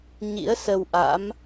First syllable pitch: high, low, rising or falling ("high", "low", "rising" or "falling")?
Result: rising